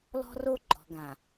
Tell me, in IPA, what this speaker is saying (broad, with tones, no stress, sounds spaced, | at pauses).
l ɔ̤˦ r o˦ ɡ͡ǃ ɔ̤˨ ɡ ã˨